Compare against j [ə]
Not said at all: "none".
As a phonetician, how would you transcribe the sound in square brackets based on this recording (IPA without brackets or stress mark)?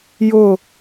ʊ